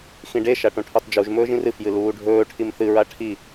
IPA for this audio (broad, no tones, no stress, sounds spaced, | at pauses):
x ĩ ɖ e ʃ a ʈ õ ʈʰ o tˤ d͡ʒ u ʒ m ɵː ʒ ĩ r ɨ f j ɨ l uː ɖʱ ɵː ʈʰ i m θ ɨ ɹ a ʈʰ i